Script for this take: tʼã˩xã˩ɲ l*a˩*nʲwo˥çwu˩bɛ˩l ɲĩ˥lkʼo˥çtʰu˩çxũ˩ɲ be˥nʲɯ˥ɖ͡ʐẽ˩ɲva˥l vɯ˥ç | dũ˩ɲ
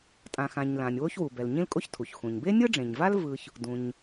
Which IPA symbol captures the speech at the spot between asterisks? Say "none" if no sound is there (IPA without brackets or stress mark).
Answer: ã˩